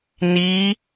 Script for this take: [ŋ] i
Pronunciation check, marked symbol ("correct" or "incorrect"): incorrect